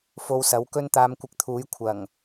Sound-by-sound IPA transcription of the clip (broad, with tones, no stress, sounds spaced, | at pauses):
f o˧ w s ɐ˨˥ w k ɵ˥ n t̪ aː˧ m kʷ ɪ˧ k̚ t̪ʰ uː˨˥ j kʷʰ ɐ˨˩ ŋ